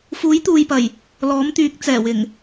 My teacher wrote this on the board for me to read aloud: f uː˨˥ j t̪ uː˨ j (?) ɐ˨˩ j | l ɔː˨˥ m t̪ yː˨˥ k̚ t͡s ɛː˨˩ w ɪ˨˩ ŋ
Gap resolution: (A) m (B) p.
B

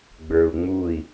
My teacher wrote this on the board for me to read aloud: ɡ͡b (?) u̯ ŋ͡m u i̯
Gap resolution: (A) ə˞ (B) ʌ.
A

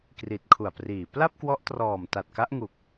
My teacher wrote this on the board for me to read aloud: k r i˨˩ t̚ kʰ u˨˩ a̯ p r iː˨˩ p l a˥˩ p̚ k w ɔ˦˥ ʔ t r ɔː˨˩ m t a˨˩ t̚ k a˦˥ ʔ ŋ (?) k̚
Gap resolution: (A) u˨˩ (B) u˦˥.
A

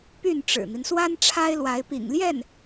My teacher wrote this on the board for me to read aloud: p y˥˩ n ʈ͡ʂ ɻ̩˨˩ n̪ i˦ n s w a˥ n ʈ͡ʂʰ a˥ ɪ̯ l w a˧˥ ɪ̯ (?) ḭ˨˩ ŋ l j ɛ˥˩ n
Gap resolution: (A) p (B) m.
A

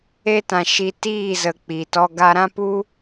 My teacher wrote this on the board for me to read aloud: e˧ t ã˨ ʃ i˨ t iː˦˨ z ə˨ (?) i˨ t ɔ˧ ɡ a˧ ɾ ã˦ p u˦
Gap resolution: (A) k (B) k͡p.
B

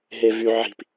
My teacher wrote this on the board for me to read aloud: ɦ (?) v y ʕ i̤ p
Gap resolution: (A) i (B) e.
B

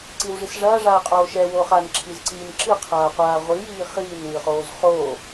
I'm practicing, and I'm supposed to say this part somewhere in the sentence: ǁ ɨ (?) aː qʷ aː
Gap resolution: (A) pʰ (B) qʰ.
B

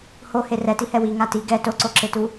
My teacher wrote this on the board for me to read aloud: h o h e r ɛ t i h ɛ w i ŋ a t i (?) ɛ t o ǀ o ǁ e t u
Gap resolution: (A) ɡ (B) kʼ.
A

